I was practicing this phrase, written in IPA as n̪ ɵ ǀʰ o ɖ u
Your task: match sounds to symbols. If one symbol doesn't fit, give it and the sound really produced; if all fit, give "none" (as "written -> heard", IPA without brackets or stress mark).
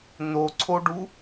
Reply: ɵ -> o